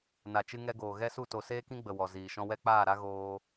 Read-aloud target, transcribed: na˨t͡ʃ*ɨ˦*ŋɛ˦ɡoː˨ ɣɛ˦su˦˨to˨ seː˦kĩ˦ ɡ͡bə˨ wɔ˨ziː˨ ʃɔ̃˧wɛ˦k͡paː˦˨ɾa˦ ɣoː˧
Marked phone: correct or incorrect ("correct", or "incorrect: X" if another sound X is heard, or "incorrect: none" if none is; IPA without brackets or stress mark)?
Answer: correct